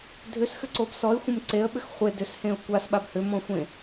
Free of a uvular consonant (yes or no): no